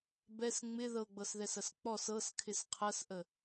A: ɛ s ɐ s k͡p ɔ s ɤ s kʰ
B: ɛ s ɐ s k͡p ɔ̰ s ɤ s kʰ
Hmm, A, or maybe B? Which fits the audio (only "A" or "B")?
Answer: A